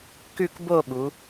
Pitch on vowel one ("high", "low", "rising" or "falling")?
falling